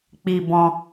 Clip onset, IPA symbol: k͡p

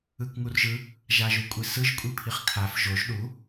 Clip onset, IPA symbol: ɯ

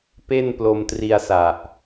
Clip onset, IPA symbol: p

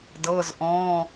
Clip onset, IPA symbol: d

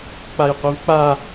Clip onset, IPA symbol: k͡p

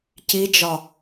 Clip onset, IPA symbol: c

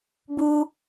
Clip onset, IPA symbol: b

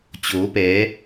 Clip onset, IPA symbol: t͡ɕ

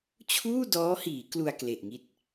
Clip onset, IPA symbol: t͡ɕʰ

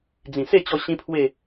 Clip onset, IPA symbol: d͡z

